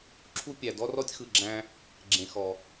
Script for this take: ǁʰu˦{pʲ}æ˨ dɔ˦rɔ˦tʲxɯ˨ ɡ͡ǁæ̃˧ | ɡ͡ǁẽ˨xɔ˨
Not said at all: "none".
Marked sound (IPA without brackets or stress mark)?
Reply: pʲ